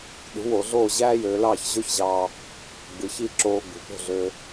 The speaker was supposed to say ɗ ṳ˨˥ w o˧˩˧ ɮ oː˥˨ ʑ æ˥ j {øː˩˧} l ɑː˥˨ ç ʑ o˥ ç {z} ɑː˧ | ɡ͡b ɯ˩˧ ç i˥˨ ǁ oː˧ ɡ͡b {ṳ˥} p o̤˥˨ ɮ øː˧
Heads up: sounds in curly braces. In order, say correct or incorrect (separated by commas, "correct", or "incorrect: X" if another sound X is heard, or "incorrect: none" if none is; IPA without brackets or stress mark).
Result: correct, incorrect: ʑ, incorrect: ṳ˩˧